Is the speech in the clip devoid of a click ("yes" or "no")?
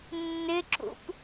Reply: no